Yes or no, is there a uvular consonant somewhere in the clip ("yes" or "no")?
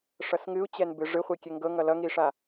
yes